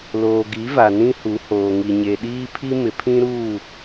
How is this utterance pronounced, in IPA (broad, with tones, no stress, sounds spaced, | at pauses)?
l oː˨ ɡ i˨˦ v a˨ n ĩ˦ h u˨˦ h oː˨ ŋ i˨ ɲ e˨ ɗ iː˦ pʰ i˦ m ɪ˨ pʰ ĩ˦ ɾ uː˦˨